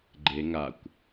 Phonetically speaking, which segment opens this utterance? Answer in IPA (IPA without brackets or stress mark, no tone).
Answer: ɡ͡ǃ